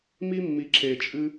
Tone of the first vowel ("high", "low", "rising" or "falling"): high